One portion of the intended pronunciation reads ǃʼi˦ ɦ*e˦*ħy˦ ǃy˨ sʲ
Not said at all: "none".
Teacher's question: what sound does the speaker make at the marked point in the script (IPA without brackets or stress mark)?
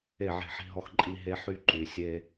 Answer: e˦